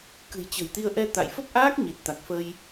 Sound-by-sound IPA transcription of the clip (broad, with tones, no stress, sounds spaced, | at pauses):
k ɨ̤˨˩ j t͡ɕ ə̤˨˩ j t̪ i˧ ə̯ ʔ ɛ˧ t̪ a̰˧˨ j f ə˦˥ p̚ ʔ aː˦˥ k̚ ɲ i˨˩ t̚ t̪ a˨˩ k̚ f ə˧ j